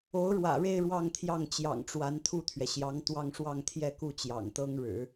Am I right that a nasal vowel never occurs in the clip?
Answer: yes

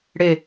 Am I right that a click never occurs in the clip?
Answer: yes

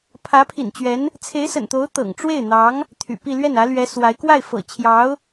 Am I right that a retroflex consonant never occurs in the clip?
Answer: no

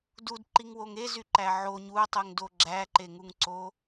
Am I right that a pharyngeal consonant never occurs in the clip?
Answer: no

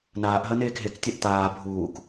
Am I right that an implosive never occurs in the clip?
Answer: yes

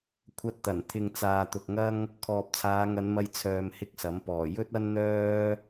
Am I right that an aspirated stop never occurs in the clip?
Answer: no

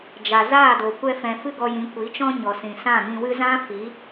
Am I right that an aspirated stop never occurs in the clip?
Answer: yes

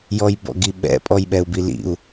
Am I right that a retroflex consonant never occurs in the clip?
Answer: yes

